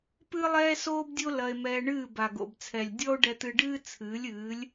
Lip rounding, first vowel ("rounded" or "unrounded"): unrounded